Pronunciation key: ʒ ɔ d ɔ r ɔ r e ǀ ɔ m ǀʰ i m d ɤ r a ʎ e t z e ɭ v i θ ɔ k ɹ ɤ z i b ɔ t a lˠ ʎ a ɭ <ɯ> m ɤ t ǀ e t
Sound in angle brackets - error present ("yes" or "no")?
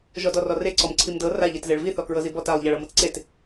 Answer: yes